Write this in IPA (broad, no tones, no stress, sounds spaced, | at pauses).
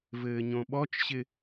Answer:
v ɘː ɲ õ ɓ ɔ t͡ʃ ɕ ɪ